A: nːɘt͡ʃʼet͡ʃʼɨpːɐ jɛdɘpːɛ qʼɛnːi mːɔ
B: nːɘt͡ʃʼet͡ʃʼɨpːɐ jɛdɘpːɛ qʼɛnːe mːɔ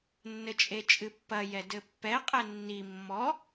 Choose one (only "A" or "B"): A